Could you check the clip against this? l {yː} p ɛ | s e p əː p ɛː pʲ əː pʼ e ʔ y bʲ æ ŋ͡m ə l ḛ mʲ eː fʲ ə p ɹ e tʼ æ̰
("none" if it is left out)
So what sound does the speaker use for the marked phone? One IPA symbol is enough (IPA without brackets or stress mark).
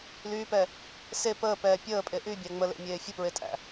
yː